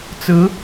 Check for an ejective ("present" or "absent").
absent